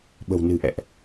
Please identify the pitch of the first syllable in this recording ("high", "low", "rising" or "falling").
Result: low